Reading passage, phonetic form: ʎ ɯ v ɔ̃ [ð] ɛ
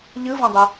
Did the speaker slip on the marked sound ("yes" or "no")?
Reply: yes